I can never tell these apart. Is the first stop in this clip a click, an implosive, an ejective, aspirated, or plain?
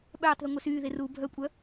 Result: implosive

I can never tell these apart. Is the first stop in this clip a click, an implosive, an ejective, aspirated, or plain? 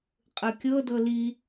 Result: ejective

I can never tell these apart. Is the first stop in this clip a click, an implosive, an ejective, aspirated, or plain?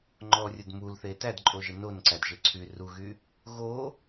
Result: click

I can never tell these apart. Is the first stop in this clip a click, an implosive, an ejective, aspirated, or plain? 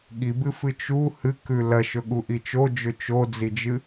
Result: implosive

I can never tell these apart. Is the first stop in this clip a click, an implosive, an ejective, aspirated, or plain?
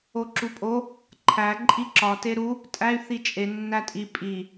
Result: click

